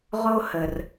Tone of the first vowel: high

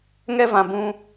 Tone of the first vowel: high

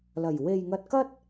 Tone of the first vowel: low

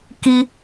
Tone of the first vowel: high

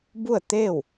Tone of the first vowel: falling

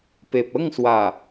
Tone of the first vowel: low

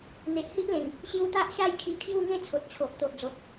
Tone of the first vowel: low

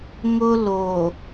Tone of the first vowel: high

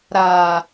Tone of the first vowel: low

